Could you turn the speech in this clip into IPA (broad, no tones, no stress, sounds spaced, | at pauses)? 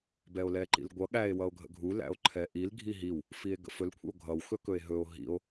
b ɛ o̯ l ɛ ǃ ḭ l ɡʷ ʌ ɠ æ e̯ w ʌ o̯ ɡʱ ə̰ ɡʱ u l æ̰ o̯ ǃʰ ɛ ʔ i l ɡʱ i ɦ i w | f i e̯ ɡ ə̰ f ɵ l kʷʰ ə̰ o̯ ɡʱ ʌ w x ɵ k ɵ e̯ ɦ ɵ o̯ ɦ ḭ o̯